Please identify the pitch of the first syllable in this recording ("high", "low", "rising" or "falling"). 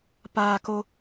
low